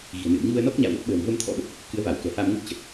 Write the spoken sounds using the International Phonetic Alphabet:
ɣ i̤˨˩ ə̯ n ɨ̰˧˨ ə̯ ɲ u˧ ə̯ n ɔ˦˥ k̚ ɲ a̰ː˧˨ w l ə˦˥ t̚ ɓ ə̤ː˨˩ m v ə˧ m t̪ʰ ɔ̰˧˥ ɓ ə˨˩ p̚ | k ɨ˨˦ ə̯ v a˧˩ w k ɛ̤˨˩ h a˧ m ŋ u˦˥ t̚ t͡ɕ ə˨˩ t̚

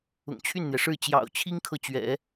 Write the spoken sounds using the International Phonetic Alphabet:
ʊ̰˨˩ ŋ t͡ɕʰ y˥˩ n n̪ j ɛ˩ ʂ ɻ̩˥˩ t͡ɕ j ɑ̰˨˩ ʊ̯ t͡ɕʰ i˥ ŋ kʰ ɤ˨ t͡ɕ ɥ ɛ̰˨˩˦

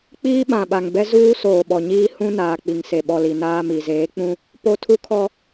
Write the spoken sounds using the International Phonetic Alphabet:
k͡p iː˦ ɓ ã˨ ɓ a˨ ŋ b ɛ˦ z uː˦ s oː˨ ɓ ɔ˨ ɲ iː˦ h ũ˦ n aː˨ k͡p i˨ ŋ s e˨ ɓ ɔ˨ l i˨ n aː˦ m i˨ z eː˨˦ k͡p ũ˦ | p o˦ tʰ u˦ kʰ ɔ˦

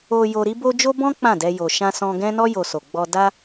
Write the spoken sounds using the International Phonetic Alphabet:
o˧ j o˧ ɾ i˦ b o˦ d͡ʒ o˦ b ɔ̃˦ k͡p ã˦˨ d ɛ˧ j o˨ ʃ ã˧ s ɔ̃˧ ɡ ɛ̃˦ n ɔ˦ j o˧ s o˨ ɡ͡b ɔ˧ d a˦

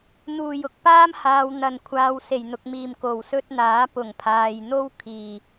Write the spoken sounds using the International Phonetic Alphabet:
n̪ uː˨˩ j ʊ˨ k̚ p aː˥ m h aː˨ w n̪ ɐ˨˩ n kʷʰ aː˨ w s e˨˩ j n̪ ʊ˨ k̚ m iː˨˩ m k o˨˩ w s ɵ˥ t̚ n̪ aː˨˥ p ʊ˨˩ ŋ pʰ aː˨ j n̪ o˥ w kʰ iː˨˩

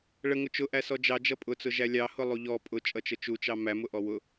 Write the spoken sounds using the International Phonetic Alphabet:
ɭ ə ŋ ʊ t͡ʃ ʊ ʔ æ s ɔ d͡ʒ ɑ d͡ʒ ʌ pʼ ʊ t͡s ʊ ʒ æ lʲ ɑ h ʊ lˠ u ʎ ɔ pʼ ʊ t͡ʃʼ ʌ t͡ʃ ə t͡ʃ u t͡ʃ ɑ m æ m ʊ ʔ ɔ w ʊ

